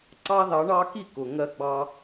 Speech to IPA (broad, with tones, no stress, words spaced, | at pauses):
ǀɑ˦ðɑ˨˦ɳɑ˦ki˥˩ kʊ˩ ŋɜ˦ɡ͡bɑ˦